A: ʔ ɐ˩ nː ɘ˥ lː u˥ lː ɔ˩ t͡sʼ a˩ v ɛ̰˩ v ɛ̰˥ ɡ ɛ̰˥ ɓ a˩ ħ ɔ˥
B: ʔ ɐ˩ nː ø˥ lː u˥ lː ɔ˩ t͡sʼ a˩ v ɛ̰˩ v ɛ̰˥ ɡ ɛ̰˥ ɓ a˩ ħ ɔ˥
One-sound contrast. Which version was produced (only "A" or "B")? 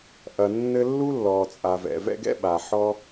A